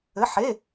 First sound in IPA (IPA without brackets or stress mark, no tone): ɘ